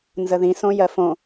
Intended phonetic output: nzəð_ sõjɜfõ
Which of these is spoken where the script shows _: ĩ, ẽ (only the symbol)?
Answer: ĩ